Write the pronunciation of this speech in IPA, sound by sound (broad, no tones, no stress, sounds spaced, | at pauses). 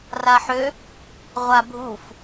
r a ħ ø | ʁʷ a bʱ u f